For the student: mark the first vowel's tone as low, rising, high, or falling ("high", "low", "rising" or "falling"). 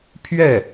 falling